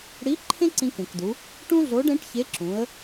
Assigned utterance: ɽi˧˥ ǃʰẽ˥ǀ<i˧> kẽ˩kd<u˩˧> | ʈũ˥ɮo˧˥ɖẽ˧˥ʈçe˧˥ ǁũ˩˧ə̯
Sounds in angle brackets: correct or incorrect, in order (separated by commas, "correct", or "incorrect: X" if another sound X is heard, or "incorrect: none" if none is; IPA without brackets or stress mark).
incorrect: ĩ˧, correct